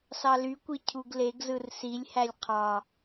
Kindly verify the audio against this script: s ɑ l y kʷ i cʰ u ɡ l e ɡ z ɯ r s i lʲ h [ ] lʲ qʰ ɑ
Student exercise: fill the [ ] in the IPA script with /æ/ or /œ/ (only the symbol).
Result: æ